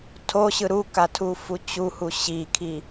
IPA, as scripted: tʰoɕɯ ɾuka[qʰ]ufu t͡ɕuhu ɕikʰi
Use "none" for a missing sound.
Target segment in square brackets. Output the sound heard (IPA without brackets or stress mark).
tʰ